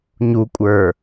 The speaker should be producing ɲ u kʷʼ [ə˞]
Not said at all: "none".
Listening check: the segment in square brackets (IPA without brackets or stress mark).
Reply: ə˞